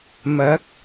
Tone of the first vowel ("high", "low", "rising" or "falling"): rising